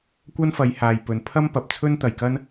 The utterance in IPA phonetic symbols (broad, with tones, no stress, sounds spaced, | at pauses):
kʷ ɐ˥ n f ɐ˨˧ j h aː˨ j p ɵ˨ n pʰ ɐ˥ m p ɐ˨ p̚ t͡sʰ ɵ˥ n t̪ ɐ˨ j k ɐ˥ n